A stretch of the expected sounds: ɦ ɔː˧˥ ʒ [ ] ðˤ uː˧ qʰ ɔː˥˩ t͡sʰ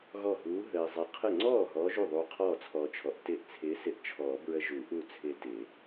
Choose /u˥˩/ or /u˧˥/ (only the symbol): u˥˩